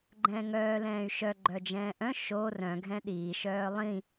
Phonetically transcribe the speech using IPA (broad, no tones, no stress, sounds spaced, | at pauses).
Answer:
ɡ͡ǃ ɛ̃ː ŋ œː l ɛ̃ː y̯ ʃ œ ɡ͡ǃ œ d͡ʒ ɛ̃ː ʔ œ̃ ʃ o r œ̃ ɡʱ ɛ̃ ɗ iː ʃ œː lˠ ĩ